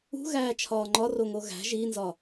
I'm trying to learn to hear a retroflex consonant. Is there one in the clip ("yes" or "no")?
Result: no